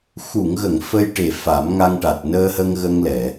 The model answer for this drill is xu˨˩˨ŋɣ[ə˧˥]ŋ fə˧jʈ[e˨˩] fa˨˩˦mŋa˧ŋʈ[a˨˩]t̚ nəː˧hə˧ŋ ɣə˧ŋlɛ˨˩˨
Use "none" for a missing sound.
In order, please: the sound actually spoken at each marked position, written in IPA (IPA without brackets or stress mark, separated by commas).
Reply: ə˨˩˨, e˨˩, a˨˩